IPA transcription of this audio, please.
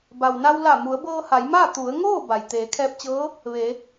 b a˩ w n a˧ w l a˧˩ m u˩˧ ə̯ b ɤː˧ h a˩˧ j m aː˥˨ t̪ u˩˧ ə̯ ŋ oː˥˨ b a˩ j t̪ eː˩˧ kʰ ɛː˧ p̚ t͡ɕ ɤː˧˥ | ʋ e˩˧

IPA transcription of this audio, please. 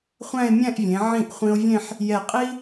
χʷ æ̃˥˧ e̯ mʲ æ̃˥˧ ʔ vʲ ẽ˩˧ ʕ ĩ˧˩ ʔ χʷ ĩ˧ o̯ vʲ ẽ˥˧ ħ | j ɛ˧˩ qʼ i˥

